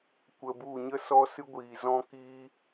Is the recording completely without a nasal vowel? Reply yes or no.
no